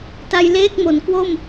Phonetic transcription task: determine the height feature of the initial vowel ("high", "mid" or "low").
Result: low